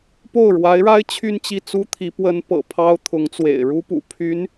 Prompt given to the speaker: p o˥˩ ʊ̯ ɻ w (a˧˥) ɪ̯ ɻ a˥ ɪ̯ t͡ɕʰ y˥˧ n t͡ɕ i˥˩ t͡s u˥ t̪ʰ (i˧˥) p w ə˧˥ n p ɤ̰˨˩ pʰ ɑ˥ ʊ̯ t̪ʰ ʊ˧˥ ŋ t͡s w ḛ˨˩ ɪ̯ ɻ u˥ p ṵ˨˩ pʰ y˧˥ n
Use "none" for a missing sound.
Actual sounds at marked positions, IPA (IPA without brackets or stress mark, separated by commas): a˧˥, i˧˥